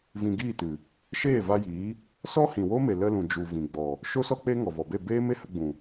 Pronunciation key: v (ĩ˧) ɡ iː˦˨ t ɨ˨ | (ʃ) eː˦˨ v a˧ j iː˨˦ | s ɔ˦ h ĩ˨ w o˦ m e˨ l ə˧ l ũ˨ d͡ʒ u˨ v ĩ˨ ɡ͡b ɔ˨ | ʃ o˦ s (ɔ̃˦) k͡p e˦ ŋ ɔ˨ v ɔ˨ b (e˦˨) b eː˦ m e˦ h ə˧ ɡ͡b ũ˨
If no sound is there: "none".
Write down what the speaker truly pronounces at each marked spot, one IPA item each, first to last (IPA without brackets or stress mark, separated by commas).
ĩ˧, ʃ, ɔ˦, e˦˨